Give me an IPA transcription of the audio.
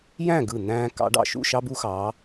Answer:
j æ̃˥˨ ɡ ɯ˧˩ n̪ æ̃ː˦ k ɑ̰˨˦ ɖ ɑ̰˧˩ ʃ ṵ˥˨ ʃ ɑ˦ b u˦ x ɑ˨˦

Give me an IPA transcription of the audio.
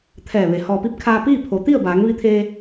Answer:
t̪ʰ ɛː˧˩ ʋ e˩˧ h ɔː˩ p i˧ p̚ kʰ aː˧ p iː˥˨ pʰ o˩˧ t̪ i˥˨ ə̯ b aː˩˧ ŋ ʋ i˧ t̪ʰ eː˧

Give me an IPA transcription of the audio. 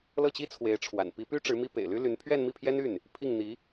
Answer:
l ɤ˥˩ t͡ɕ i˥ t͡sʰ w e˧˥ ɪ̯ ʈ͡ʂʰ w a̰˨˩ n p i˧˥ p y˥ ʈ͡ʂ ɻ̩˧˥ m i˥ p ḛ˨˩ ɪ̯ l y˥ l y˧˥ n pʰ ɥ ɛ˥˧ n m i˥˩ pʰ j ɛ˥ n y˥˩ n | pʰ i˥˩ ŋ n̪ i˧˥

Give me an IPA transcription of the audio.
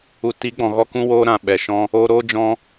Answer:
u˨ t i˨˦ ɡ͡b ɔ̃˨ ɣ ɔ˦˨ k ũ˦ w o˦ ɾ ã˧ ɓ ɛ˨ ʃ ɔ̃˦ | o˧ ɾ o˦ d͡ʒ ɔ̃˦

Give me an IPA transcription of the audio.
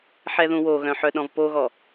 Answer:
ħ ɛ ð ũ w o ɣ œ̃ ħ œ ɗ ɔ̃ v p o ɣ ɔ

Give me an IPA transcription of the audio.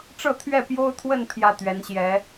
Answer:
ʈ͡ʂ ɤ˥˧ t̪ʰ ɥ ɛ˥˩ p j o˥ ʊ̯ t̪ʰ w ə˥˧ n pʰ j ä˥˩ t̪ ɥ ɛ˧˥ n ɕ j ɛ˧˥

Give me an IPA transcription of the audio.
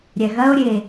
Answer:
ɾʲ ɛ ɣ ɐ o̯ ɾʲ e

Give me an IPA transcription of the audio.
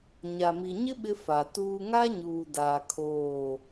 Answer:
ɲ a˨ m i˨ ɲ ɪ˦ ɓ ɪ˦ f a˨ t uː˦ ŋ a˦ ɲ uː˨ d aː˨ kʰ oː˦˨

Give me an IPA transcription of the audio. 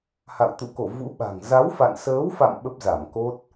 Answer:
h a̰˧˨ w t̪ ṵ˧˨ k o˧˩ v ṵ˧˥ ɓ a̤˨˩ ŋ z a˨˦ w f a̰˧˨ n s əː˨˦ w f a̰˧˨ m ɓ ə˦˥ p̚ z a˧˩ m k o˦˥ t̚

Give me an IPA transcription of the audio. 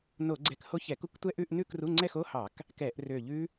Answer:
n o˧˩˧ ɡ͡ǀ ɛ˧˩ k h o˦˥ ç ɛ˧˩˧ k u˦˥ k tʷ ɛ˥˧ ʔ ʉ˥˧ ʔ n ʉ˥˧ k r u˧˥˧ ŋ͡ǀ ɛ˥˧ x o˧˥˧ h ɑ˧˩˧ k | k ɛ˧˩˧ ʔ r ø˧˩ ʎ ʉ˦˥

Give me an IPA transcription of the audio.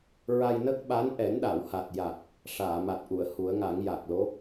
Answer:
ɹ a˧ j n ə˦˥ k̚ ɓ a˧˥ n ʔ ɛ˨˩˦ n ɗ a˨˩˨ w h a˨˩ t̚ j a˨˩ k̚ | ʂ aː˨˩˨ m a˨˩ t̚ ʔ u˨˩˨ ə̯ h u˨˩˦ ə̯ ŋ a˨˩˦ ŋ j a˨˩ k̚ l o˧˥

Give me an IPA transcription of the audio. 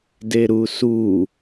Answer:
d e ɾ u s u

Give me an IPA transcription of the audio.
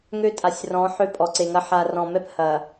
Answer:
ŋ ø˦ tʼ a˨ sʲ r ɔ̃˨˦ ħ ø˦ pʼ ɔ˨ ǀ e˨ ŋ ɐ˦ ħ a˨ r ɔ̃˨ m ɛ˦ p h ɐ˨

